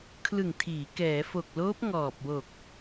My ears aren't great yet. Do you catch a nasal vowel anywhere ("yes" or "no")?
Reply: no